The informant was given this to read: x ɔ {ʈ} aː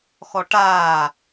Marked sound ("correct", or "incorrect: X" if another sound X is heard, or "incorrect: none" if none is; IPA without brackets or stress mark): correct